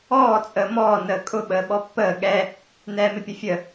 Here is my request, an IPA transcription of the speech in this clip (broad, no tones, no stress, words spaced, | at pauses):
ɔː t͡sʼəːmɔː nəːkʼʊ ɓəːɓɔpːəː ɠɛ | nɛːmɪpʲʊfʲə